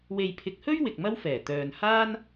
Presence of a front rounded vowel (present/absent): present